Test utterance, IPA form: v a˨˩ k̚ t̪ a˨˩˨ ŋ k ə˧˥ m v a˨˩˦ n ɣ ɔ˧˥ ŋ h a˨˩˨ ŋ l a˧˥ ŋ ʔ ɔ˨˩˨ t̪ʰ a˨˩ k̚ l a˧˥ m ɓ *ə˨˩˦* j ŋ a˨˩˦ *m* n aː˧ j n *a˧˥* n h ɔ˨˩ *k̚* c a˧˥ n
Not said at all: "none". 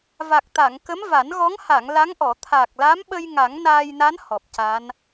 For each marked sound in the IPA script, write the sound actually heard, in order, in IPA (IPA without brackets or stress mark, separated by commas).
ə˧, ŋ, a˧˥, p̚